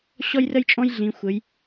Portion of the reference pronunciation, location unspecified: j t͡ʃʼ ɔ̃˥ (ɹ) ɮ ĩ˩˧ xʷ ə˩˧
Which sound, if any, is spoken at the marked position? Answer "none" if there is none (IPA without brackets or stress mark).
j